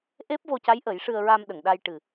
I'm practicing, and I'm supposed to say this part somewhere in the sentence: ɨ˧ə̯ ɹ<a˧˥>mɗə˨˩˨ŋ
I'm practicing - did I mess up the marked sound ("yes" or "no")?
yes